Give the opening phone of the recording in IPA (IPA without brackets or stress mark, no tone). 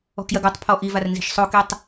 ɔ̤